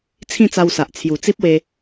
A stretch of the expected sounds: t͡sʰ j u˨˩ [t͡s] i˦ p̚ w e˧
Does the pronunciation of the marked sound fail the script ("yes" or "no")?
no